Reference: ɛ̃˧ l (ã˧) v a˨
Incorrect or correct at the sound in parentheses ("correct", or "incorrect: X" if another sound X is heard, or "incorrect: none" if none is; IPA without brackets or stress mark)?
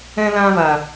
correct